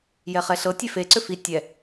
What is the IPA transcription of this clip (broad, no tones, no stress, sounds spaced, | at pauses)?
j ɛ χ ɛ ɬ ɤ tʲ e f e ǀ ʏ f i tʲ ɛ